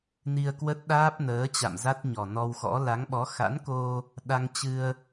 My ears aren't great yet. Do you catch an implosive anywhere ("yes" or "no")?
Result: yes